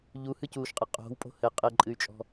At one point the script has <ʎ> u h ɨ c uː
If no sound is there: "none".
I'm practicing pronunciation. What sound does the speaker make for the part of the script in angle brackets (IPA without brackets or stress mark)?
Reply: ʎ